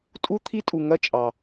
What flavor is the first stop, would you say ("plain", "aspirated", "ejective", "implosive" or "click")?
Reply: ejective